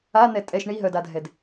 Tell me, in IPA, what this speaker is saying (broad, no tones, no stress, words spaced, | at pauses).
an̪ɛ tʼɛʃ ɳiɦœdadʱɛd